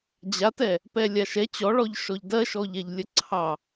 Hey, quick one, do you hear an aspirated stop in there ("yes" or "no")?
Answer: yes